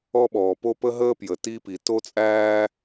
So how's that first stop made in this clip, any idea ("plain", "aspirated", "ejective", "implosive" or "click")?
implosive